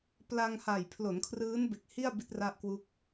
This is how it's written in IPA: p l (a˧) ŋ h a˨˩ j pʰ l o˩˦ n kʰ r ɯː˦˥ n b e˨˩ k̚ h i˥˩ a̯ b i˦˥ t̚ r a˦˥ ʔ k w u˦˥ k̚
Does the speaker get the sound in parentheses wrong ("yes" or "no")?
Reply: no